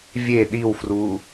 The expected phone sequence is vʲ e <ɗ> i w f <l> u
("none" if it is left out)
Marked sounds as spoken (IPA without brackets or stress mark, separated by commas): ɗ, r